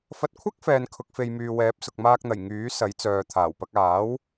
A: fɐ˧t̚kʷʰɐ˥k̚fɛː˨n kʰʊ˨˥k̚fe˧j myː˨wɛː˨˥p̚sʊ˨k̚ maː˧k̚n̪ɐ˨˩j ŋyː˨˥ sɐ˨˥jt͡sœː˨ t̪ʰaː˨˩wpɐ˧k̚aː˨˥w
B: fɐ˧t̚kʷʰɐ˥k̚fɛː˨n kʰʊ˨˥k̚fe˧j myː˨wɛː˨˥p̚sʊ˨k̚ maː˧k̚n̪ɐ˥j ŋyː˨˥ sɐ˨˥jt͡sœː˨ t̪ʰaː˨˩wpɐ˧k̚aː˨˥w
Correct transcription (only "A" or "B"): A